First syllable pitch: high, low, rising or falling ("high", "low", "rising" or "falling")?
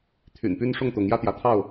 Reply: low